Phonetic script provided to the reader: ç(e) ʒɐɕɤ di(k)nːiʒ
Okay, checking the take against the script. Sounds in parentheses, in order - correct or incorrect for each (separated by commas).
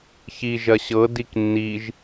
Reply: incorrect, correct